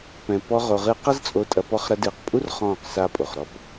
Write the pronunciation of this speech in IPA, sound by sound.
pɛ̃˨pɔ˧ ʁo˨ʁɨ˧ qɐ˦zt͡sʼo˧tʼɐ˧ pɔ˧χɾɐ˧dɨː˨qpʼu˦r χɔ̃ː˦˨qsa˦ pʼo˨χɾɔ˦p

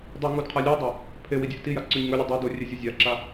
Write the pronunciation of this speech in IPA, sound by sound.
dˤʉŋud qʰalʲudˤa | pʰewi dʲɵʔtija ǀʉɲŋɵlʲɨ dˤudo rʲezʲʉzʲaǁa

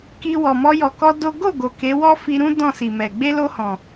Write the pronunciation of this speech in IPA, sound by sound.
ki˧wɔ˨ mɔ˧jɔ˨kɔ˧ do˦ ɡo˦˨ ɡo˨ke˨˦wɔ˦ fi˧ɾũ˦ dɔ̃˦˨si˨mɛ˨ ɡ͡be˧lo˧ hɔ̃˨

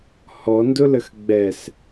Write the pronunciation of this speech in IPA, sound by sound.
hɔndʊləx ɡ͡bɛs

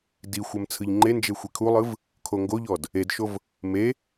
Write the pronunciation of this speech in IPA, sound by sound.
dixʷɛm t͡sʰɯʎŋ͡ǃend͡ʒe xʷikʰulˠɯv | kʰoŋɡoʎɔd | edʃov | me

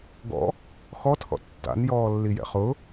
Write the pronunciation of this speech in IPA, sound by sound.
ɡɔ̰ | xɔtʰɔ̰ tːa̰njɔːlːijɛ̰ χʊ

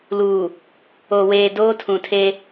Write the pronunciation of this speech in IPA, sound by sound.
luː˨ | o˨weː˨ doː˦tʰũ˨tʰe˦

